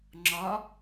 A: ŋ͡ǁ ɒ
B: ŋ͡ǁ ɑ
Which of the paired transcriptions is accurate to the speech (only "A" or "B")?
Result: A